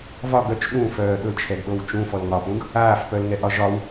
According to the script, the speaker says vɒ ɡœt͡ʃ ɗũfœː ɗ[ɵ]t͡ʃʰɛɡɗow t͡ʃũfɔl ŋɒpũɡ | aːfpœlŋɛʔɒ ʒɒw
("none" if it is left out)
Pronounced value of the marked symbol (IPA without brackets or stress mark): ɵ